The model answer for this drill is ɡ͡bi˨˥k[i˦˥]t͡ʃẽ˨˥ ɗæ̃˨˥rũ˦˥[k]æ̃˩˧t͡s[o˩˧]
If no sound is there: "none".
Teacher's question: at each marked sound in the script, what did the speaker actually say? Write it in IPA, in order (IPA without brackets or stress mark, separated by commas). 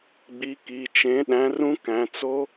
i˩˧˩, k, o˦˥